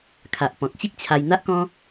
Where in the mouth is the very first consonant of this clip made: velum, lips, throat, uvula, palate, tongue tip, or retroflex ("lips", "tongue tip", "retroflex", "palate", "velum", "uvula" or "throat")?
velum